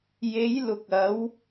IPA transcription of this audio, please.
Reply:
j e˨˧ j l ʊ˨ k̚ ɐ˨˧ w

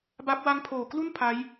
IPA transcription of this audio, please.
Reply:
b a˦˥ p̚ w a˦˥ ŋ pʰ oː˨˩ k l u˥˩ n pʰ a˦˥ j

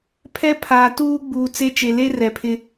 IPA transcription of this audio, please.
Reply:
pʰ ɛ˦ pʰ aː˨ t uː˦ ɡ͡b uː˨ t͡s e˦ t͡ʃ e˨ l e˦ r ɛ˨ pʰ ɪ˦

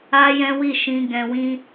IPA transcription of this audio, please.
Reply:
a˦ j ɛ̃˦ w i˦˨ ʃ ĩ˧ ɡ ɛ̃˧ w ĩ˦

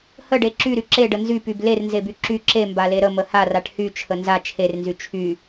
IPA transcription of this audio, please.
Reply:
h ə ɖ e ǁ y ɾ y ǁ e ɖ ə n z y p y b l e r n z e b y ǁ y ǁ e m b a l e ɾ ə m ə h a r a ʈ h y t͡ʃʰ ə n z a t͡ʃʰ e r n z y t͡ʃʰ y

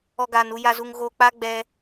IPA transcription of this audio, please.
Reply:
ɔ˧ ɡ aː˨ n u˧ j a˨ z u˨ ŋ ɣ o˧ k͡p a˦ ɡ͡b ɛ˦

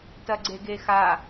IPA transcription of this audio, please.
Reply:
t ɐ ɡ͡ǀ e ɡ e x a

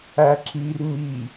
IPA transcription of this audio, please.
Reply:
æ ǁ i r m i

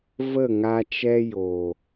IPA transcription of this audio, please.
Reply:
v ə˦˨ ŋ a˧ t͡ʃ ɛ˧ j oː˨

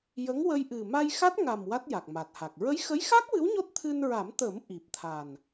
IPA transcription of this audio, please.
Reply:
j ə˧˥ ŋ w ə˧ j ʔ ɨ˨˩ m a˧ j x a˦˥ t̚ ŋ a˨˩ m w a˦˥ t̚ j a˨˩ k̚ m a˨˩ t̚ h a˨˩ k̚ ɹ ə˧˥ j x ə˧˥ j x a˦˥ k̚ w ɨ˧˥ w ɲ o˦˥ t̚ t̪ʰ ɨ˧ n ɹ a˨˩˦ m t̪ əː˨˩˦ m ʔ i˨˩ p̚ t̪ʰ a˨˩ n

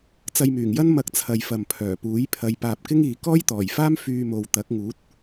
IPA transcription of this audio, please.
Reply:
t͡s ɐ˧ j m yː˨˩ ŋ j ɐ˥ n m ɐ˧ k̚ t͡sʰ ɐ˨ j f ɐ˨ m pʰ œː˨˩ p uː˨˥ j pʰ ɐ˨˧ j p aː˨ p̚ k ɪ˥ ŋ iː˨ k ɔː˥ j t̪ ɔː˨˩ j f aː˥ m f yː˧ m o˨ w t̪ ɐ˨˥ k̚ ŋ uː˨˥ t̚

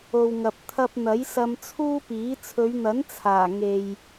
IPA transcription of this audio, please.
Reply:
o˨ w ŋ ɐ˨ p̚ t̪ʰ ɐ˧ p̚ n̪ ɐ˨˥ j s ɐ˧ m t͡sʰ uː˥ p iː˨˥ t͡sʰ ɵ˨˧ ɥ n̪ ɐ˨˥ n t͡sʰ aː˨˩ ŋ e˨ j

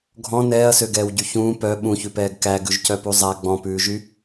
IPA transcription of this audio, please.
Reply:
ɡʱ ɔ̃ n ɛː ɐ̯ s ø ɡ ɛː w ɟ y ç ũː p œ ɓ ũ ç ʉ p ɛː ɡ k æ ɡ ʉ ʒ c œ p u zˤ æ ɡ͡b ɔ̃ p ʉː ʒ y

